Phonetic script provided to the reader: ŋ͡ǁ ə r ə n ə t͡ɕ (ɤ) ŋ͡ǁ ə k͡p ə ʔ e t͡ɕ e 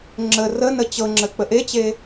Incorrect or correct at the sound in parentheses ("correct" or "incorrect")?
correct